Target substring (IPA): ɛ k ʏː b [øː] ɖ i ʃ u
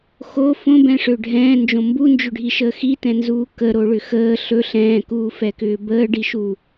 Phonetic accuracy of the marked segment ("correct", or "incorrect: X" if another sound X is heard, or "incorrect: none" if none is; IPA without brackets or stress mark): incorrect: əː